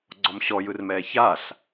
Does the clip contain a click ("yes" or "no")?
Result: yes